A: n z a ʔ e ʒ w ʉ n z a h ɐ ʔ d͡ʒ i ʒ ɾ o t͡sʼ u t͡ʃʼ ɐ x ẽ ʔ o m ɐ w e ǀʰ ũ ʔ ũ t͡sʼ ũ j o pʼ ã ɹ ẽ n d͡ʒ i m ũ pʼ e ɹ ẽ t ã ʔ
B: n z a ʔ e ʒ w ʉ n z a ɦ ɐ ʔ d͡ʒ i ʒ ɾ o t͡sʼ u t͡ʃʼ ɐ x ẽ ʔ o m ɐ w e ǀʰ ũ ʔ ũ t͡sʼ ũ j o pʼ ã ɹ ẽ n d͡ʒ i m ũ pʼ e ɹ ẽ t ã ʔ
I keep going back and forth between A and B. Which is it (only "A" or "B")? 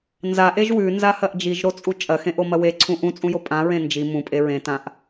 A